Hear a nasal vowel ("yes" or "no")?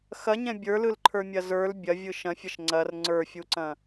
yes